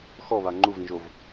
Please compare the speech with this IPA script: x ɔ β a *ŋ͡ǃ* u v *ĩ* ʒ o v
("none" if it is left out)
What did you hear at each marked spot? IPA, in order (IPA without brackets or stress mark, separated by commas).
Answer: ŋ͡ǃ, ĩ